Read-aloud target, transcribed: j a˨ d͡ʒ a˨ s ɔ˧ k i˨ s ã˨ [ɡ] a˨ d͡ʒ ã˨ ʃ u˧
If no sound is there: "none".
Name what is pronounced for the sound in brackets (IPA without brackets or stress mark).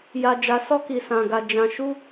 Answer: ɡ